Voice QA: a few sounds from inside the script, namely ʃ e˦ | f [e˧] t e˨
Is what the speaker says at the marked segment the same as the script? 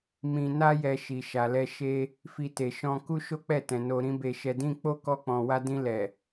no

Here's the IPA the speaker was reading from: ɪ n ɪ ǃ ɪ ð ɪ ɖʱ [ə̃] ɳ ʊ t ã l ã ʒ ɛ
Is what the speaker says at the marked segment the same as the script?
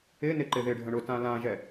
yes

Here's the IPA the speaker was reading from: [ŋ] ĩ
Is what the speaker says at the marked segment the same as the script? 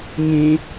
yes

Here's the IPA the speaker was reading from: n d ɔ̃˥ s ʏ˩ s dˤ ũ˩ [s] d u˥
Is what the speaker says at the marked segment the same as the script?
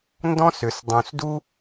yes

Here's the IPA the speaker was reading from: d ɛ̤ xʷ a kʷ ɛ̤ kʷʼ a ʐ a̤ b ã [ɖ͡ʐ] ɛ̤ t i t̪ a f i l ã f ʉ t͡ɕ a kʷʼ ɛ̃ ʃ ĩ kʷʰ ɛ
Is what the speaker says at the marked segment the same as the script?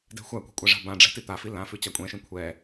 yes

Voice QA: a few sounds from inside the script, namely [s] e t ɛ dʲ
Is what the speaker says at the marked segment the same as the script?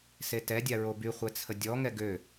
yes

